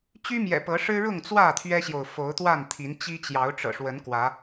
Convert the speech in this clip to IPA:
t͡ɕy˦mjɛ̰˨˩ pɤ˨˦ʂɻ̩˦ɻʊ˥˨ŋ t͡swä˥˨ t̪ʰɥɛ˦ɕjo˨ʊ̯ fo˨˦ʊ̯t̪wa˥˨nt̪ʰi˨˦nt͡ɕi˦ t͡ɕjɑ˨˦ʊ̯ʈ͡ʂɤ̰˨˩ʂwə˨˦n kwä˨˦

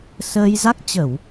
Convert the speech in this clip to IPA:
səː˧jza˦˥k̚ t͡ɕə˧˩˨w

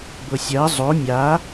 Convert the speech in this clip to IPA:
bɤsʲɜ zˤo mʲa

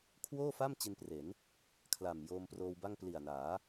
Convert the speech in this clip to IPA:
kʰwoː˥˩fa˥˩m t͡ɕi˧npre˩˦n | kʰla˨˩m joː˧mproː˧wba˥˩ŋ pli˨˩a̯naː˩˦

